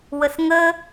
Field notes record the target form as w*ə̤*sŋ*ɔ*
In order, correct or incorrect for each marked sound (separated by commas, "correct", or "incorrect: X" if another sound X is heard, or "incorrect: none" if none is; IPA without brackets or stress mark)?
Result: incorrect: ə, incorrect: ə